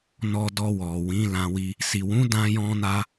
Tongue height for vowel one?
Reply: mid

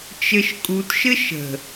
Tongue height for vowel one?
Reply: mid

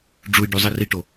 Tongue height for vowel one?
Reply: high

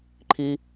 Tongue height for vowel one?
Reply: high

